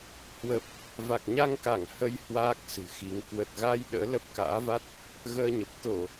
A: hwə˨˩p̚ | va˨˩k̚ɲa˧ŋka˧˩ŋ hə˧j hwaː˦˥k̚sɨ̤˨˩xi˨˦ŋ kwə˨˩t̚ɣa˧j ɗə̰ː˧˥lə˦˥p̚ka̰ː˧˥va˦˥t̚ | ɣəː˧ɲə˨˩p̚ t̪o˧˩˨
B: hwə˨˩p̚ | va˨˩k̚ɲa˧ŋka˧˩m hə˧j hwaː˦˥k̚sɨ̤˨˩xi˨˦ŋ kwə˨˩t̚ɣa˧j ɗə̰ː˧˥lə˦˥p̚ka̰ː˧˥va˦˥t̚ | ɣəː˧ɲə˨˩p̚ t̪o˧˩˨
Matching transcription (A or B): A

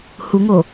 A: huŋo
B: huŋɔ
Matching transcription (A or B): A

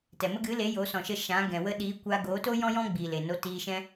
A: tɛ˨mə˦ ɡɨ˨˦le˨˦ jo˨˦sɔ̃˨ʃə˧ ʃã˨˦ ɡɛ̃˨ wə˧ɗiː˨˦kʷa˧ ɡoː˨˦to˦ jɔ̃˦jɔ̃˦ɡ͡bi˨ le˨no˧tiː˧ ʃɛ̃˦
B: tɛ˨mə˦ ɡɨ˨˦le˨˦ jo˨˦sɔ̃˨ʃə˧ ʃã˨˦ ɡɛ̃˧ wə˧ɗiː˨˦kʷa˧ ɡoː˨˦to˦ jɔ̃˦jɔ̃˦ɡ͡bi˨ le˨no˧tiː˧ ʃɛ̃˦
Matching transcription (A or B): A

